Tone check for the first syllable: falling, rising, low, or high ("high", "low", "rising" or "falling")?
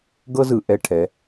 high